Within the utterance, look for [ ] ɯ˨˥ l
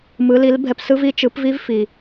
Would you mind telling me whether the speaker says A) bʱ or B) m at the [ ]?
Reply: B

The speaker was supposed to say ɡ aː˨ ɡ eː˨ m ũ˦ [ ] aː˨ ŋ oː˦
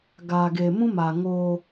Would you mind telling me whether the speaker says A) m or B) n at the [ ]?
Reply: A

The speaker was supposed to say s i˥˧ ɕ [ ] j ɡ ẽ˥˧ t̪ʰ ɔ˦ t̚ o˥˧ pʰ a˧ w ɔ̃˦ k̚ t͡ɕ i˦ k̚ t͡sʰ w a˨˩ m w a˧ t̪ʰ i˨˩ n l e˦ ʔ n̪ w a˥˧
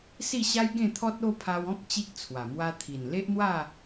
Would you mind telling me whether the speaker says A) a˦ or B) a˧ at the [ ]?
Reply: A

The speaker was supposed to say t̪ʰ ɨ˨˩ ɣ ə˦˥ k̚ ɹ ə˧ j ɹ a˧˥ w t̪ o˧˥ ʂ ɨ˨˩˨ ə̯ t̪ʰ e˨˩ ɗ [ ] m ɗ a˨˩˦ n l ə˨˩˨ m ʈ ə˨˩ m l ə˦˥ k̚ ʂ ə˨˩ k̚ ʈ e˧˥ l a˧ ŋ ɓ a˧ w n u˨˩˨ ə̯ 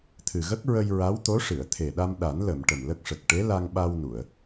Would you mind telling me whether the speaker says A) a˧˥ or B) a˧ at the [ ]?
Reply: B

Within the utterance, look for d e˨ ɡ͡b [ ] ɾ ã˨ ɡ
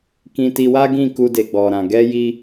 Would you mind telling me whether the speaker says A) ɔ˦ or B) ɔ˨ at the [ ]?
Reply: B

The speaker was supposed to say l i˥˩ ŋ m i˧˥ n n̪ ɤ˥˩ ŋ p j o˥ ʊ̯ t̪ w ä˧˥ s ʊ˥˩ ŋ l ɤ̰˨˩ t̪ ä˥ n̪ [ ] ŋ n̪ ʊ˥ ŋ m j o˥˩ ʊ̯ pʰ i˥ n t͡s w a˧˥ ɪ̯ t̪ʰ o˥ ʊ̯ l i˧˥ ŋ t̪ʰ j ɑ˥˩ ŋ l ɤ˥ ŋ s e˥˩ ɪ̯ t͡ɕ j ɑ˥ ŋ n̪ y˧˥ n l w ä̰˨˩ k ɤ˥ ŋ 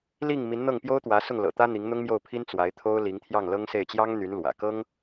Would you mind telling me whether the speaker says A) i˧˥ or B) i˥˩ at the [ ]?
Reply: A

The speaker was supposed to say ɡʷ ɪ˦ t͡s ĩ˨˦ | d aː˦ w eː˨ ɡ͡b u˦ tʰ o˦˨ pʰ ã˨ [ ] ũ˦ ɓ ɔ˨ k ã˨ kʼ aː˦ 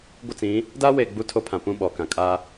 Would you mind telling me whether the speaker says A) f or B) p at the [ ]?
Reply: B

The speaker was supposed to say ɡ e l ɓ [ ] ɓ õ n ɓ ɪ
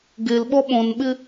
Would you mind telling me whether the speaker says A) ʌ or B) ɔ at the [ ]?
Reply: B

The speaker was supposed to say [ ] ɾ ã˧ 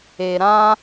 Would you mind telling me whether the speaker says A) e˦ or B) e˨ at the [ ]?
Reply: B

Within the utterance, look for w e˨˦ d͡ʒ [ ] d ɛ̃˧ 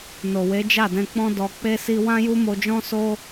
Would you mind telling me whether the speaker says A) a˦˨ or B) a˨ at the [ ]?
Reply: A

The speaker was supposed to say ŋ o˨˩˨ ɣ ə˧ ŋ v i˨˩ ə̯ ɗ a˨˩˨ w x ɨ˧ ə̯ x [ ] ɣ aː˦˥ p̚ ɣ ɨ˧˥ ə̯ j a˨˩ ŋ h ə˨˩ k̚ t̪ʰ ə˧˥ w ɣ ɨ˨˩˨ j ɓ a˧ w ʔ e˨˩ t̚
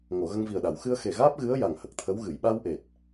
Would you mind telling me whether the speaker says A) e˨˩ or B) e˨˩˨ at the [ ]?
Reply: A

